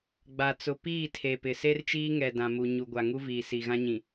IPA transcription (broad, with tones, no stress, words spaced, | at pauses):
ɡ͡ba˨t͡sʊ˨piː˦˨ tʰe˨pɪ˨ se˦rt͡ʃiː˦ ŋɛ˨dã˨mu˨ ɲu˨ɡʷa˨ ŋu˦viː˨ si˨ ɣã˦ɲĩ˨